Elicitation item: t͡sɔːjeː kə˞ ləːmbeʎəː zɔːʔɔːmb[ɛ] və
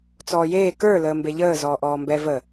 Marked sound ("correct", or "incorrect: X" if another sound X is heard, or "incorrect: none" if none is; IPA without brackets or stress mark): correct